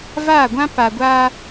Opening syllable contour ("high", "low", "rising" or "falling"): falling